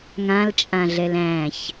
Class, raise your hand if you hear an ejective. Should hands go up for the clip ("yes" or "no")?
yes